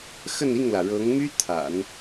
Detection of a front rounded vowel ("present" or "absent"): present